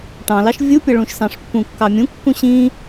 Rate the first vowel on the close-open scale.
open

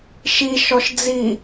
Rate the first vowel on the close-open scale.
close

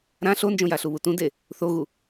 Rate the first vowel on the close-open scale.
open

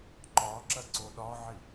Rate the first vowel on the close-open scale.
open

